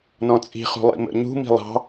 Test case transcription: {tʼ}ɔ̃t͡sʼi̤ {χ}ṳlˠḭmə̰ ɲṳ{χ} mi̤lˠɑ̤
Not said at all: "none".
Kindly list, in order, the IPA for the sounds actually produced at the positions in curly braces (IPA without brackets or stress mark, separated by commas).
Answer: n, χ, none